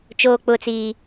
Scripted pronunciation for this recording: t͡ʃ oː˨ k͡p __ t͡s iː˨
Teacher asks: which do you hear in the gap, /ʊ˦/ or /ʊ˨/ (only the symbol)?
ʊ˨